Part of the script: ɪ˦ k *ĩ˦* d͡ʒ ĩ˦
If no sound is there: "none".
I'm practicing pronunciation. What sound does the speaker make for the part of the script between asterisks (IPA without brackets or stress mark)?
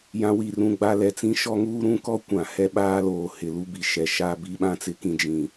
ĩ˦